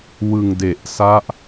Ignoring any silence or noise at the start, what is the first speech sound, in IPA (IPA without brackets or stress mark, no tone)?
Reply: w